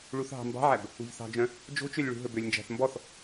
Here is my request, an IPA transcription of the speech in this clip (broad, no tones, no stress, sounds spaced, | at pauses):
ɭ u θ ɦ ɑ̤ m b ɑ̤ ʕ æ b | ṳ ʎ θ ɑ̤ d͡ʒ œ̃ | d͡ʒ o̤ t͡ʃ ø lʲ ɭ ṳ ɦ ɵ b ø lʲ n d͡ʒ æ̤ θ m b ɔ θ